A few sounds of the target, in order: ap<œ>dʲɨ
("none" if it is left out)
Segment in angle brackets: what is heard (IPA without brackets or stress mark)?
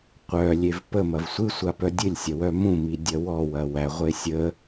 œ